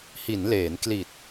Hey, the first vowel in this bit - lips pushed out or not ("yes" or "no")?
no